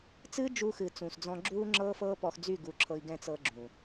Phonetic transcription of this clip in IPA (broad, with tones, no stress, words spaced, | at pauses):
t͡sɨː˦d͡ʒu˧xɨ˨ t͡sũ˨sd͡zɔ̃˧ ɡ͡ǁuː˦ ŋ͡ǁɤː˦fɤː˦pɔ˧xd͡zy˦˨ ɡu˧ǁʰɤ˧i̯ɡɛ̃˦ t͡sɤ˧ɡ͡ǁũ˨